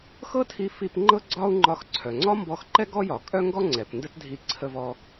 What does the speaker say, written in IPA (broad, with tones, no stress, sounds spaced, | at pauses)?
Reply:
x ɤ˥ tʰ i˧ f i˧ p ŋ͡ǃ ɤ˥ ɡ͡ǀ ɒ˥ u̯ ŋ͡ǃ ɒ˧ x ǀʰ œ˩ ŋ͡ǀ ɒ˥ m b ɔ˧ x ǃ ɛ˥ ɡ ɔ˥ j ɒ˩ kʼ œ˥ ŋ ɡ ɔ˥ ŋ͡ǀ ɛ˩ p n d ə˥ t dʱ i˧ ǀʰ ə˧ v ɔ˧